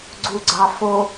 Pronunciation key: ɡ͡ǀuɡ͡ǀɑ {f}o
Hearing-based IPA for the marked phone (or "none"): f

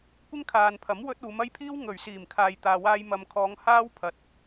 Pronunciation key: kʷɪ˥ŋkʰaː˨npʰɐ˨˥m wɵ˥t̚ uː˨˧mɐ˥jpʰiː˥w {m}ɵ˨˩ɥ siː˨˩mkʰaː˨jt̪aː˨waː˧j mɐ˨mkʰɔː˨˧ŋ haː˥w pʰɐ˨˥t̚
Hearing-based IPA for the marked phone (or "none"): ŋ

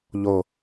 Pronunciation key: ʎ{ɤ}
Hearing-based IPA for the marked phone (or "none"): o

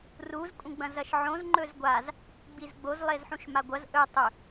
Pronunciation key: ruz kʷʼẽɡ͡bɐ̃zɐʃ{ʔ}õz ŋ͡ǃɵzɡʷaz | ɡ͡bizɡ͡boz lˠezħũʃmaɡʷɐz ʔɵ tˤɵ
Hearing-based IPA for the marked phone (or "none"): ʕ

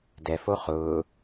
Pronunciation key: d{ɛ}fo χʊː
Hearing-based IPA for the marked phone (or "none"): ɛ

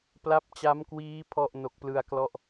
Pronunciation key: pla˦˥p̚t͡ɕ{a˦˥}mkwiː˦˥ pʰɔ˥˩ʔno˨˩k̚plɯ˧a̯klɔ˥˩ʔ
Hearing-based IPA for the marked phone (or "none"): a˦˥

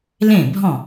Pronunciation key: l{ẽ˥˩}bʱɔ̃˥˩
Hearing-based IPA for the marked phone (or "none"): ẽ˥˩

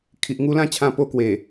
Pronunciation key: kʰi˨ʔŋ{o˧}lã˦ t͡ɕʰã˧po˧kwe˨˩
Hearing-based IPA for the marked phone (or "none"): u˧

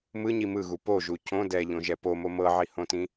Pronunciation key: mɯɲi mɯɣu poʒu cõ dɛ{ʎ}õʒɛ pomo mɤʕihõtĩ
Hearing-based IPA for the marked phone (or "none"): ʎ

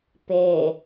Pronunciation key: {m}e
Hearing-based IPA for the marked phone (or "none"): p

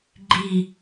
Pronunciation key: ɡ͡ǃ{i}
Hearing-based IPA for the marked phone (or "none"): i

